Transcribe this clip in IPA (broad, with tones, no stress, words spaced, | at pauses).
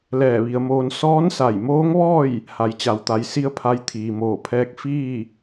lɛː˧˩ʋi˩˧ə̯moː˧n sɔː˧˥nsa˧˩jmoː˧˥ŋʋɔː˥˨j | ha˩˧jt͡ɕa˩wt̪a˩˧j si˧˥ə̯pʰa˧j t̪ʰiː˩moː˧˩pʰɛː˧˥k̚ fiː˥˨